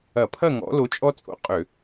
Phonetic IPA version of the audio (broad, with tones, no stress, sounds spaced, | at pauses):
ɐ˧˩˧ pʰ ɐ˥˨ ŋ ɔ̰˨˦ l o˨˦ t͡ʃʼ ɔ˦ t͡sʼ o̰˨˦ qʼ ø˧˩˧